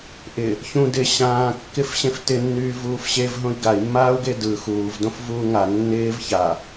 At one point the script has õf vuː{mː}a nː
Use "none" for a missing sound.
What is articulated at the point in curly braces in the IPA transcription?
ŋ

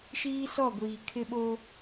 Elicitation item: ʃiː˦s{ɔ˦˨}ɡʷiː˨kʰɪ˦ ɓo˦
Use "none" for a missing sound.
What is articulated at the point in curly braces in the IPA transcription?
ɔ˦˨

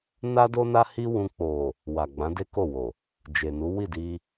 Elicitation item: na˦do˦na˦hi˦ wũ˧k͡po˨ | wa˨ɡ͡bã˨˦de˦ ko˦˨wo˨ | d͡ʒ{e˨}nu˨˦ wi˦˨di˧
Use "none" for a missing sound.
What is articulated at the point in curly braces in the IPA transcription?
e˨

